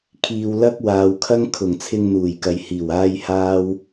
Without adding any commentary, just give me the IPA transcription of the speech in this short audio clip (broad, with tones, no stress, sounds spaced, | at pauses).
kʰ iː˨ w l ɐ˥ k̚ w aː˨ w kʰ ɐ˥ ŋ kʰ ʊ˨˩ ŋ t͡sʰ ɪ˧ ŋ n̪ uː˨˩ j k ɐ˨ j h iː˨˩ w aː˥ j h aː˥ w